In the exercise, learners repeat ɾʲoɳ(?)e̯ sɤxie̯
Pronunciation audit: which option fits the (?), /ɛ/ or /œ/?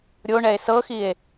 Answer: ɛ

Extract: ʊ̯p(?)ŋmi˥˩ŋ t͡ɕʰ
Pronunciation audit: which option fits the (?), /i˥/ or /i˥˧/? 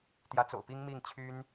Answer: i˥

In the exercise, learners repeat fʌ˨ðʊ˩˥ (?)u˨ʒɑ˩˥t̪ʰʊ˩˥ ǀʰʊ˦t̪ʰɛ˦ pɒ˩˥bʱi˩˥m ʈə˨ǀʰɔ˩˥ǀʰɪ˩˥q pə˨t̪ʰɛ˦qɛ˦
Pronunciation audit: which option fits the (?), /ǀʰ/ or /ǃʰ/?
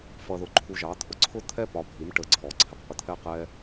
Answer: ǃʰ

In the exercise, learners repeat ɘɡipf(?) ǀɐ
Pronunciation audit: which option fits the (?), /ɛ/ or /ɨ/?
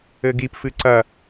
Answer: ɨ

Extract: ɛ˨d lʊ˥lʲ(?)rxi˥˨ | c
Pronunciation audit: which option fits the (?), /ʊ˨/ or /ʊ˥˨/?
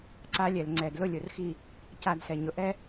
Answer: ʊ˨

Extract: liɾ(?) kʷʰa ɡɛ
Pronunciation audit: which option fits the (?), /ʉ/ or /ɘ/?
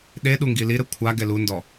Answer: ɘ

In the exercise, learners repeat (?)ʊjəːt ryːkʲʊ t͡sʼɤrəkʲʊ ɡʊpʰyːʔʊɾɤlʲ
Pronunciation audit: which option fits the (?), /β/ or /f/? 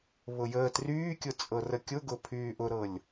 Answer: β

